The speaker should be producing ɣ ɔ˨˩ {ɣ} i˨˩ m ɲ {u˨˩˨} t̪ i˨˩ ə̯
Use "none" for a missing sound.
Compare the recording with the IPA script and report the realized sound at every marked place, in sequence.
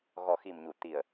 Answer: x, u˨˩˨

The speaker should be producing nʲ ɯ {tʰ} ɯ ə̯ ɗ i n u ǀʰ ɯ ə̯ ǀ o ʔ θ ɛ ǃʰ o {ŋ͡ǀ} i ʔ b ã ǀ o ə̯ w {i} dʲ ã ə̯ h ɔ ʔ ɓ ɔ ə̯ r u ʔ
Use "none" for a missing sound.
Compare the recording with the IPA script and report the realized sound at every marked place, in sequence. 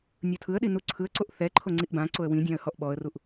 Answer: tʰ, ŋ͡ǀ, ĩ

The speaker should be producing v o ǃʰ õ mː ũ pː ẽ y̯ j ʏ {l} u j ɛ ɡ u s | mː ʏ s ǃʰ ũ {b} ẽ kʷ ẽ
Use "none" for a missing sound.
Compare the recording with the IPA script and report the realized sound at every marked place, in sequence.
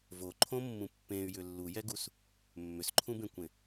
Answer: lː, b

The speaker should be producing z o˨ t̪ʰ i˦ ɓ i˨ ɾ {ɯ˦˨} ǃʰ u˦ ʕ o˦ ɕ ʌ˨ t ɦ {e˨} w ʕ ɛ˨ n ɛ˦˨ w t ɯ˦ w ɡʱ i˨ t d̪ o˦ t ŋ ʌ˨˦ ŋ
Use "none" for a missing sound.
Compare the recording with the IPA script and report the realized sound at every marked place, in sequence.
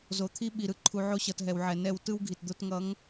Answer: ɯ˦˨, ɛ˨

